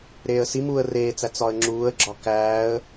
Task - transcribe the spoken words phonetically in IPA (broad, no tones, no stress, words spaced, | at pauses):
ɾeːə̯simuːə̯ reːt͡sæ t͡sɒə̯ŋ͡ǁuːə̯ɡ͡ǁɒ kæːə̯